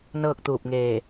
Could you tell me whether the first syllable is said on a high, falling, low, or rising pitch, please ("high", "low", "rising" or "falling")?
falling